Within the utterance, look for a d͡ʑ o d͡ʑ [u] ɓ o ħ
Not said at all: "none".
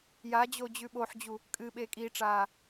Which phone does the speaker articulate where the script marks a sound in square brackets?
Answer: ʉ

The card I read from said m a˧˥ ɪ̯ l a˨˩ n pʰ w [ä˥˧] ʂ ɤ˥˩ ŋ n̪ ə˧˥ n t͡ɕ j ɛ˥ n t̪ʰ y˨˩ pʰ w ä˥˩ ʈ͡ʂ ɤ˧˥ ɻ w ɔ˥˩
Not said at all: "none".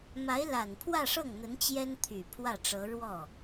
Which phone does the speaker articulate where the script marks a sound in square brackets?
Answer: ä˥˧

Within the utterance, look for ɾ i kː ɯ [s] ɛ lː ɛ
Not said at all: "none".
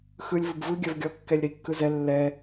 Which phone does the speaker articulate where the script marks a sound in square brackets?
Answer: z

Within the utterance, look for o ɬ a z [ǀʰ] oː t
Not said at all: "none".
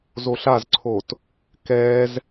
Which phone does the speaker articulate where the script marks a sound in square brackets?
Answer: ǀʰ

